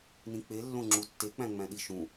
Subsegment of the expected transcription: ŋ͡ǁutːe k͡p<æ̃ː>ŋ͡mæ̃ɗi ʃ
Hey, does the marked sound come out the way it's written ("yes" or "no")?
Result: no